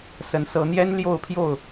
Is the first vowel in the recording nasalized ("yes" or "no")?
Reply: no